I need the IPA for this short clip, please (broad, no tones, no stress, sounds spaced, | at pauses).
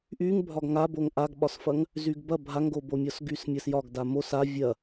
ʔ y ŋ bʱ ɒ ɡ ŋ a b o ŋ ʔ a ɡ ɓ ɒ s f ɐ ŋ | z y ɡ b ɐ bʱ a ŋ ɡ o b o mʲ ɒ s ɡ y s mʲ ɐ s j ɒ ɡ d a m o s a vʲ ɐ